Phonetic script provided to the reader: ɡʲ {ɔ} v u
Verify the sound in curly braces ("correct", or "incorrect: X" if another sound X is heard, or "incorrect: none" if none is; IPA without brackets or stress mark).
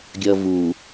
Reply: incorrect: ʌ